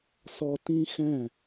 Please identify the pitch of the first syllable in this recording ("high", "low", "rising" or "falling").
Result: high